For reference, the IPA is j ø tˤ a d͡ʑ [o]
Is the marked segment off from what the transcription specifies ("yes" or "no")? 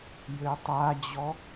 yes